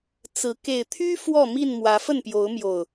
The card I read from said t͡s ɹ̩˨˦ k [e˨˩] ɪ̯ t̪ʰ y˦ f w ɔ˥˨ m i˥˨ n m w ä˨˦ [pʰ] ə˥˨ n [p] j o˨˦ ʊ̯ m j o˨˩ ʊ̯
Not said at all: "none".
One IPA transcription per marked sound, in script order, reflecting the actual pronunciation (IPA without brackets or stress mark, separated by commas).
e˨˩, f, p